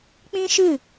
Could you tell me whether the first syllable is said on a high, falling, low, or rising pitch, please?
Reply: high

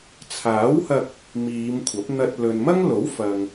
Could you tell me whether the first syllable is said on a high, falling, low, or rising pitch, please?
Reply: rising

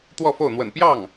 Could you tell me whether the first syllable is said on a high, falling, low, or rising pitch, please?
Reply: falling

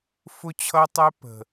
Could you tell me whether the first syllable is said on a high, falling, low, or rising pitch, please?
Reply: high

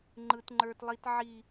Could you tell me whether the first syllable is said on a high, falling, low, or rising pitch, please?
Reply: high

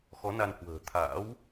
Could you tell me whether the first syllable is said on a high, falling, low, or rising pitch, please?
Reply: rising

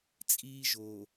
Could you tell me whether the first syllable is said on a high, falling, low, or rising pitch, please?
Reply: high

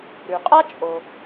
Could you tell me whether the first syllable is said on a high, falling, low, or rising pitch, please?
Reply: low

